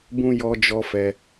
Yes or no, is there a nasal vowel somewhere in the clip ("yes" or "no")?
yes